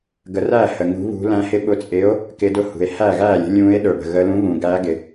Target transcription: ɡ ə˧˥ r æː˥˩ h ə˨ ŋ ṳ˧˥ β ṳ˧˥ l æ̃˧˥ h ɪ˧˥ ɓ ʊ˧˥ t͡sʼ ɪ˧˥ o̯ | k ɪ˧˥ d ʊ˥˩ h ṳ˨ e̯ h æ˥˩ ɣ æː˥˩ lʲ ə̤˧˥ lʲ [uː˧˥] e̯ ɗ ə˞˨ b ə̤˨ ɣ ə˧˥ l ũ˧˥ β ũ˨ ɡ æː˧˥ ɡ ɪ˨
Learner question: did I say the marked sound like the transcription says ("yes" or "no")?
no